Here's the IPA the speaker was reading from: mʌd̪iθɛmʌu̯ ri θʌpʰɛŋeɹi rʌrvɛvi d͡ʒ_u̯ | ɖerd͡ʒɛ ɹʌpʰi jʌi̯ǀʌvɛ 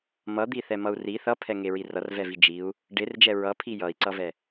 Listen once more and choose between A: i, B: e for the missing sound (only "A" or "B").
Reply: A